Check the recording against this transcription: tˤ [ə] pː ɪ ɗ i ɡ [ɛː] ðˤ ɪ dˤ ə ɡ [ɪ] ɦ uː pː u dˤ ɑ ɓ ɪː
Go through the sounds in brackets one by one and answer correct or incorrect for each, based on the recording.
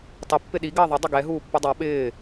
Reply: correct, incorrect, incorrect

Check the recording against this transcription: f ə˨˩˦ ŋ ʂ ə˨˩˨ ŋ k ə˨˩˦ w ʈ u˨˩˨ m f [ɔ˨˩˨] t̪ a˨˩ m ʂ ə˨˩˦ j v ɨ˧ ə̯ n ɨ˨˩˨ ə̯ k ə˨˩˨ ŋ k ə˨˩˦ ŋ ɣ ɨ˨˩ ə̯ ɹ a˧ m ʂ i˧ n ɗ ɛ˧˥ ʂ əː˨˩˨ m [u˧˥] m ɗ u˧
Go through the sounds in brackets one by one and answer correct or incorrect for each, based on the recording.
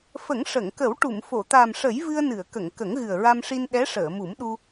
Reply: incorrect, incorrect

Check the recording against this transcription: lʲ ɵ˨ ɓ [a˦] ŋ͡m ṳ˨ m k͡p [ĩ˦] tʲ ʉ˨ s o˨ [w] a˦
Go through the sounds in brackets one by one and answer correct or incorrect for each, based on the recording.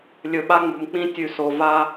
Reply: correct, correct, incorrect

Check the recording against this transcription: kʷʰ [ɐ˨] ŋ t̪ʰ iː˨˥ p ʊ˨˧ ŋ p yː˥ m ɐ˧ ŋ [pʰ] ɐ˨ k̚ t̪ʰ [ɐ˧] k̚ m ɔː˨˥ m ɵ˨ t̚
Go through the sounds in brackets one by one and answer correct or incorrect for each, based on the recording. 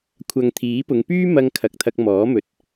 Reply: correct, incorrect, correct

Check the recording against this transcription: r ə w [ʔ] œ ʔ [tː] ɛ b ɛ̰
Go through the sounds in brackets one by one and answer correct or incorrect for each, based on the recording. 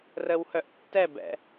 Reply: incorrect, correct

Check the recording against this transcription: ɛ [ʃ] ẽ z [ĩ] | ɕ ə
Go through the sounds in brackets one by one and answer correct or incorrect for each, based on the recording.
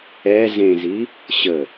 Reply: incorrect, incorrect

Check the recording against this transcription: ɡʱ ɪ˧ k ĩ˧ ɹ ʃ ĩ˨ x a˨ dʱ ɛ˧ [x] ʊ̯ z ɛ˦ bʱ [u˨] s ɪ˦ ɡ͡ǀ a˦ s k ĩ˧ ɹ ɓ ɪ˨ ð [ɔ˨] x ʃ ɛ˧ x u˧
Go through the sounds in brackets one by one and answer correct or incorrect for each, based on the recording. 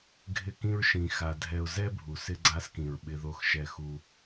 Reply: incorrect, correct, incorrect

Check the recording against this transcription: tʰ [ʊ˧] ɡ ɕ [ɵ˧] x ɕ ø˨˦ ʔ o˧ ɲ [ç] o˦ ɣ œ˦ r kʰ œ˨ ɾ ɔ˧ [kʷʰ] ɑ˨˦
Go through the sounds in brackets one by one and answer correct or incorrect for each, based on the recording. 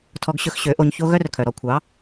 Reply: incorrect, correct, correct, correct

